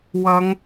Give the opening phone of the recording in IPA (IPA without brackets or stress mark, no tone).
w